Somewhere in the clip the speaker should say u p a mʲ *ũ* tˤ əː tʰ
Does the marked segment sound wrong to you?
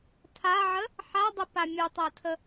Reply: yes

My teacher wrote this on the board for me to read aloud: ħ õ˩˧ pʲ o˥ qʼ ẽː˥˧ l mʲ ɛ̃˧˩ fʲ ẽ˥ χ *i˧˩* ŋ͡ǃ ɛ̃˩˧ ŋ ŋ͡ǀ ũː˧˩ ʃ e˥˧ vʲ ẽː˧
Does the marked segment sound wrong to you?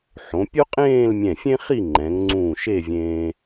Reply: yes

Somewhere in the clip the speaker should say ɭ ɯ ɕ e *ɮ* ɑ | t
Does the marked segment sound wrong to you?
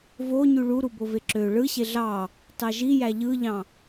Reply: no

